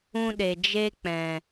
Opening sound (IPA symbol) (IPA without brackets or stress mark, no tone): ũ